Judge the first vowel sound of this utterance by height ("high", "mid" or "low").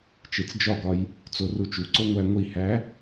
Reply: mid